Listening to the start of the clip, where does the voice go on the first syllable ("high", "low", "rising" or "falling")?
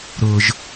low